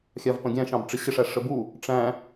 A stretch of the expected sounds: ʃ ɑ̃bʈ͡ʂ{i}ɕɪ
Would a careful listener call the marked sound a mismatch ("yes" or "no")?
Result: yes